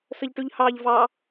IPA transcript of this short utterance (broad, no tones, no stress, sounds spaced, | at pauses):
s ə ʎ ʈ ʉ ʎ h ɑː ʎ v ɑ